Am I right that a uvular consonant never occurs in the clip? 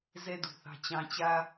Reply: yes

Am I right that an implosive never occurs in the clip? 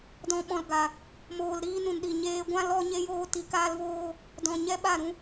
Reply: no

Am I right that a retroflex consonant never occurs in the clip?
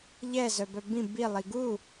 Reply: yes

